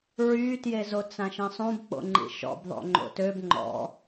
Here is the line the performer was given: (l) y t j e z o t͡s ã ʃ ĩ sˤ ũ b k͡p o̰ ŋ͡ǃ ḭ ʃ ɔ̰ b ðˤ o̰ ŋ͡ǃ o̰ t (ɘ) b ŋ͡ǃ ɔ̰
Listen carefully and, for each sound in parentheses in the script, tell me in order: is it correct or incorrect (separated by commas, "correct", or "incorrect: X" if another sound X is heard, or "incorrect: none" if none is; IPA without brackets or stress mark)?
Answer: incorrect: ɹ, incorrect: ø